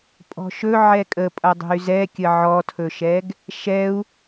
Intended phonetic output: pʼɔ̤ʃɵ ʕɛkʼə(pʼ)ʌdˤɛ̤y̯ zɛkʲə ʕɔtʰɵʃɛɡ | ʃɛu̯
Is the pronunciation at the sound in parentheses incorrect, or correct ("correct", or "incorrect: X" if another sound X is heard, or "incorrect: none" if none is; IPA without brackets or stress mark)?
correct